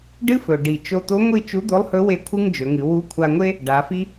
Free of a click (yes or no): yes